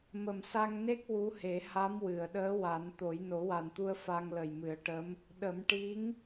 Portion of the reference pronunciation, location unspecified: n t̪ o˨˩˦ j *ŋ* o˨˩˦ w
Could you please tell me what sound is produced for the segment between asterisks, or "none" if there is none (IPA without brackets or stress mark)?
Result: n